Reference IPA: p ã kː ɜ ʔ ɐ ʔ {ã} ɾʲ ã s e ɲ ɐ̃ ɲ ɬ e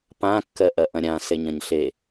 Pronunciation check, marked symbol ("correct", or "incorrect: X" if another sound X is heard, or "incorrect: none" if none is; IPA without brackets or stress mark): incorrect: ɐ̃